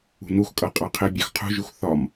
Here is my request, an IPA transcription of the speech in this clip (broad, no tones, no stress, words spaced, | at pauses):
ṳnuxkʼʌ qʼɑqʰɪbʲɑx qʰṳʒux θɒm